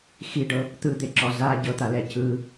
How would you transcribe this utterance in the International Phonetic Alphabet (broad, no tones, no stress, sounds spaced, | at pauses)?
x i ɖ ɤ | t̪ ɯ d̪ e ǁ ɔ z a ɟ ɤ t̪ a l ɛ c ɯ